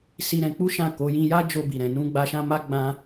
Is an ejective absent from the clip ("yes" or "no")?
yes